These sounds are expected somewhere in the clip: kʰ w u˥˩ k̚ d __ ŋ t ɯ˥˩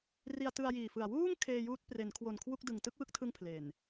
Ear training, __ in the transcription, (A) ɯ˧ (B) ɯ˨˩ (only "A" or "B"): B